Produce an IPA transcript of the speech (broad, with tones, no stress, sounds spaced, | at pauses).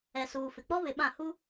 ɛ˨ s uː˨ f ɪ˨ k͡p ɔ˦ β ɪ˨ ɓ ã˦˨ h u˦